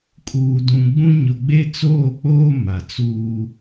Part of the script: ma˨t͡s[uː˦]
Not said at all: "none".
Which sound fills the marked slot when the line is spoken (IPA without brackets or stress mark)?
uː˦